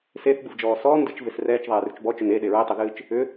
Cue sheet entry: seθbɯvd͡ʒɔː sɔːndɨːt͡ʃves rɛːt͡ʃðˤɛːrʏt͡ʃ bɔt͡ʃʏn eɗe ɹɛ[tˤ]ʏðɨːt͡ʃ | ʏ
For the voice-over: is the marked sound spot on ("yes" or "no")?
yes